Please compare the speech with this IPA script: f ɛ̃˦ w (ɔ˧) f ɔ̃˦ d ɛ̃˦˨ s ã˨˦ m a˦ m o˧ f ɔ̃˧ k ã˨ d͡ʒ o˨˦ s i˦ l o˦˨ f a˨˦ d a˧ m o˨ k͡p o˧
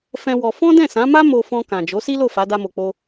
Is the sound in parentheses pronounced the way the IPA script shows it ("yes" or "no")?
yes